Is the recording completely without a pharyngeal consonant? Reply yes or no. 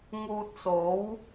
yes